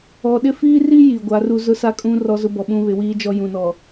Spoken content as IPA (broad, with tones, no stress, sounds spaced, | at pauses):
ɔ˨ ɗ ɪ˦ f iː˦ r i˦ j i˨ ɡʷ a˨˦ r u˦ z ʊ˦ s a˦ kʼ ũ˦ r ɔ˦ z ʊ˦ b ɔ˨ ɓ ũ˦ β ɪ˨˦ w iː˦ d͡ʒ ɔ˦ j ũ˨ n ɔ˨